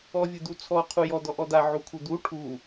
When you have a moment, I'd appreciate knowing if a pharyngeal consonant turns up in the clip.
yes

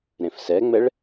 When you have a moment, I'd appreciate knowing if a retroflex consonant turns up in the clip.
yes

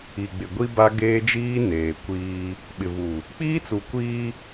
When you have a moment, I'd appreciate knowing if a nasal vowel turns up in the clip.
no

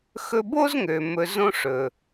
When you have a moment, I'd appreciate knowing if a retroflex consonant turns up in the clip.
yes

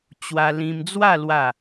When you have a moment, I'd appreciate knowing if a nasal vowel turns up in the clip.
yes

